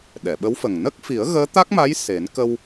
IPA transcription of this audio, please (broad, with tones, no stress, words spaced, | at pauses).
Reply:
ɗɛ˨˩˨ɓə˧˥wfə˨˩ŋ nə˦˥k̚fi˨˩˦ə̯ ɣəː˧˥t̪a˦˥k̚ma˧˥j se˨˩˦n kə˧w